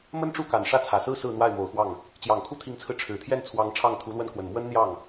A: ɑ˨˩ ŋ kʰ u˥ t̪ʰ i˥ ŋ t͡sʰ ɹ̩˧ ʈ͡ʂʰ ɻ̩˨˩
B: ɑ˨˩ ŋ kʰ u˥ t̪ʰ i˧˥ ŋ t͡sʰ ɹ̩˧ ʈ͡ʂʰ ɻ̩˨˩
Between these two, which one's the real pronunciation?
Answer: B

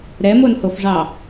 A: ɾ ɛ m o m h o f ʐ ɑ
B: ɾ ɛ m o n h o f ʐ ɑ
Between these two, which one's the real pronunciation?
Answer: B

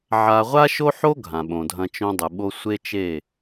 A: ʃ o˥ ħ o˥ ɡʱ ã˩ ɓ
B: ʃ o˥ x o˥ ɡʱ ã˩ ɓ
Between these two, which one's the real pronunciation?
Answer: A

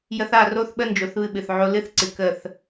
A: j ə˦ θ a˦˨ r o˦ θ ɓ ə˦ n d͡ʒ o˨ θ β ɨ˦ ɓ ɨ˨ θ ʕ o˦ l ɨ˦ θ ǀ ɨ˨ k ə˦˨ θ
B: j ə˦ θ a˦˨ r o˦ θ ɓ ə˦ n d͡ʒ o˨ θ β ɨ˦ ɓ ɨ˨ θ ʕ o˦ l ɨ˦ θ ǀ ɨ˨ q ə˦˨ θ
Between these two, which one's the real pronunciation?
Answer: A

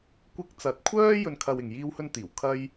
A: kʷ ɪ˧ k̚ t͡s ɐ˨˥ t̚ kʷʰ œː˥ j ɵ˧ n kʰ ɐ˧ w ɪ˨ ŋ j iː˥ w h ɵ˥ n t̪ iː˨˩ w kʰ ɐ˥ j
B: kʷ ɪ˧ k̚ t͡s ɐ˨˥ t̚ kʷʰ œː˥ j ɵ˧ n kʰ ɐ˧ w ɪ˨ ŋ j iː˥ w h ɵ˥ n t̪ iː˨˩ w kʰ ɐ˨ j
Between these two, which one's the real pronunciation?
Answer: A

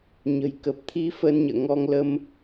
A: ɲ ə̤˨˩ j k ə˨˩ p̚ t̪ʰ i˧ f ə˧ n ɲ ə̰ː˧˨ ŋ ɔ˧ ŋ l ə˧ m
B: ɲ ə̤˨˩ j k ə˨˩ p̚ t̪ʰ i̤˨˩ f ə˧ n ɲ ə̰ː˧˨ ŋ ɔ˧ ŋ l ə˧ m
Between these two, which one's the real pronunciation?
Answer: A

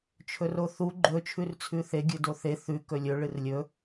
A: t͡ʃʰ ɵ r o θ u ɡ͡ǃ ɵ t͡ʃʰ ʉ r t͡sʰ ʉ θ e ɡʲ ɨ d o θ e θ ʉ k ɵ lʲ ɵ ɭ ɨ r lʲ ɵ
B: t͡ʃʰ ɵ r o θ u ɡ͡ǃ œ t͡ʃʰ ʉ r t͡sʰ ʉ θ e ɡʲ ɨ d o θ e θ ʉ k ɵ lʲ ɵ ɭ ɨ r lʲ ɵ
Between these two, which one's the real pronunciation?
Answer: A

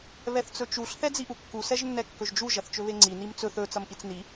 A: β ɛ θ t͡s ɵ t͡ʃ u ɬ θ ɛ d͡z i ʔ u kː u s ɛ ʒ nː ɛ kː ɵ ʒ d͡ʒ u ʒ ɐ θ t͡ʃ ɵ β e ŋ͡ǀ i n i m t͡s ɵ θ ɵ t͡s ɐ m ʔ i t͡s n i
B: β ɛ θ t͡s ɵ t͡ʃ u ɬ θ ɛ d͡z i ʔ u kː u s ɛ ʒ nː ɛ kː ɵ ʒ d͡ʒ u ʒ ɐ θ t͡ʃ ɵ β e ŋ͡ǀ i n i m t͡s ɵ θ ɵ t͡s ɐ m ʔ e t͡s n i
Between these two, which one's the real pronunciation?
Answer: A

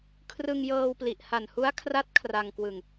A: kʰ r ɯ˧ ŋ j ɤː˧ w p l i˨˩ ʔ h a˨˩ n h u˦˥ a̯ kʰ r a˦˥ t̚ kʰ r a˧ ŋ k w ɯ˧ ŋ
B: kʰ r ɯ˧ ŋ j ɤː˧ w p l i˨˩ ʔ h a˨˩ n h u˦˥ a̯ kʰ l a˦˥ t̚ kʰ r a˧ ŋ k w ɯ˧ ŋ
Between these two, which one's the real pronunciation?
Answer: A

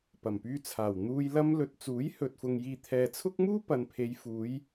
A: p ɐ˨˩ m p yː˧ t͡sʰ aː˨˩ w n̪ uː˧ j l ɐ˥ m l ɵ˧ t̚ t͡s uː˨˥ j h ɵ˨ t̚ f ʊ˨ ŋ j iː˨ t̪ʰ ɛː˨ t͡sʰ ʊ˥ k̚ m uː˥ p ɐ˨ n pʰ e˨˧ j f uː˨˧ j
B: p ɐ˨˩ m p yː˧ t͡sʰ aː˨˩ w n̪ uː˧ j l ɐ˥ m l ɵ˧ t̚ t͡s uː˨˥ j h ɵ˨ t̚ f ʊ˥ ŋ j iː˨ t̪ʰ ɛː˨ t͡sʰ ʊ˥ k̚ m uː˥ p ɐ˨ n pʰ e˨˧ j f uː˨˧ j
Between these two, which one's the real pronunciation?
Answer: A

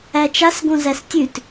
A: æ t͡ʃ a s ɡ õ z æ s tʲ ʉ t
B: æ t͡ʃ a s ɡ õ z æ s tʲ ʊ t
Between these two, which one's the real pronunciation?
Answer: A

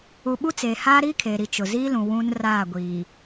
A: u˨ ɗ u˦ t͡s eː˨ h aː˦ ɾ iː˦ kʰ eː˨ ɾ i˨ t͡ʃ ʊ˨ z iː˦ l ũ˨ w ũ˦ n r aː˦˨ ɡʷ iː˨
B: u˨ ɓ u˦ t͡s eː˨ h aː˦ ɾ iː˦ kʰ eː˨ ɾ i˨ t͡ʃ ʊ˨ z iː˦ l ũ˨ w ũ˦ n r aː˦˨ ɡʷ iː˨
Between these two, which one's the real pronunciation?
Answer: B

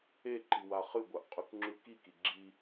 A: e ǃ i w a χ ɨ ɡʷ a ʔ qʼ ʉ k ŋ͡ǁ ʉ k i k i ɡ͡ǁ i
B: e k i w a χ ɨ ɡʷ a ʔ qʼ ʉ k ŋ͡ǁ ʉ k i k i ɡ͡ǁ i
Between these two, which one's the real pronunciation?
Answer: A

